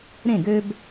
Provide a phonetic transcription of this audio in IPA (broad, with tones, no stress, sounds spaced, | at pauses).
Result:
ɾ ẽ˥˩ ɡ ø˦ b